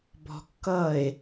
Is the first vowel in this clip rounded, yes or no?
yes